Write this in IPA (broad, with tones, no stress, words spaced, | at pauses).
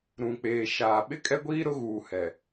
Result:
ɾũ˨k͡peː˨ ʃaː˨ ɓɪ˦kʼɛ˦ɡʷiː˦ ɾʊ˦ɣuː˨hɛ˨